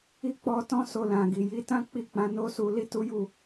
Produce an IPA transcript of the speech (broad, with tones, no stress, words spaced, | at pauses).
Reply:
i˦k͡pɔ˧tɔ̃˦ so˧lã˨ɡi˨ ji˨˦tã˦ k͡pi˦˨k͡pã˨˦no˦su˧ li˦tu˦ju˦˨